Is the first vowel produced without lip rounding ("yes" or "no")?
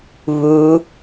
no